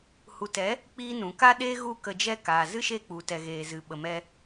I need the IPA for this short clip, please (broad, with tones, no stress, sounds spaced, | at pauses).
h u˨ t ɛ˨˦ | k͡p iː˦ n ũ˨ k a˦ ɗ eː˦ ɣ u˦˨ k ə˧ d͡ʒ ɛ˦ k aː˨ z ɨ˦ ʃ e˦˨ k͡p u˧ t ɛ˧ ɣ eː˨ z ɨ˨ ɓ ə˨ m ɛ˧